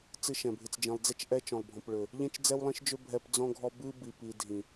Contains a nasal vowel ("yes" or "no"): yes